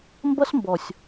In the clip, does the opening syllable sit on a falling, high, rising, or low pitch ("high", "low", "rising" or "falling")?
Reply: high